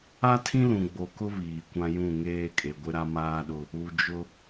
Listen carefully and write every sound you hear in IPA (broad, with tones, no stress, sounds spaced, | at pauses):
a˦ tʰ ĩ˦ l ũ˨ ɡ͡b o˨ k ʊ˦ β iː˨ kʷ ã˦ j ũ˦˨ ŋ eː˦ kʼ e˨ ɡʷ ɪ˦ ɾ a˦ m aː˦ ɗ ʊ˦ | u˨ d͡ʒ ʊ˦